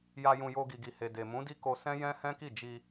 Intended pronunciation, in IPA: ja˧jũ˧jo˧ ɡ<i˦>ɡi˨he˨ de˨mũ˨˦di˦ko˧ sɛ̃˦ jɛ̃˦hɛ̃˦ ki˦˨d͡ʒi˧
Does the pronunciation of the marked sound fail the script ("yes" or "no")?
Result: yes